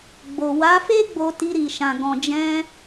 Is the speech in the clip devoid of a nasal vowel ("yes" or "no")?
no